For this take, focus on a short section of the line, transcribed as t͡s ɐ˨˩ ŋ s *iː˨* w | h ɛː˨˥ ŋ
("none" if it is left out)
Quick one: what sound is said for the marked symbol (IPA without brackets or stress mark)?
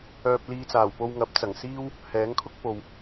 iː˥